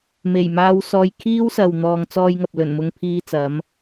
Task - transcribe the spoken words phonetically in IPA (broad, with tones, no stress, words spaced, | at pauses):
me˨˩jmaː˧w sɔː˧jkʰiː˥wsɐ˨w n̪ɔː˨ŋt͡sɔː˧jŋɐ˨p̚ lɵ˨˩nmʊ˧ŋpʰiː˧t͡sɐ˨˧m